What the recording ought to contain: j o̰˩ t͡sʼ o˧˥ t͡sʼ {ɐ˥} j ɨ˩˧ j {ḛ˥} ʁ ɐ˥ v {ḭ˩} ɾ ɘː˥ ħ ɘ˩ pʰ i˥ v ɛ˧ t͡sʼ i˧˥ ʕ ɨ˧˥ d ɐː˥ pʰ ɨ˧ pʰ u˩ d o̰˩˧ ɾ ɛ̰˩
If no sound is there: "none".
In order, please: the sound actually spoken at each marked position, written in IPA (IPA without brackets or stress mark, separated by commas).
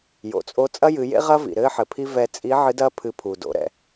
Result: ɐ˥, ḛ˥, ḭ˩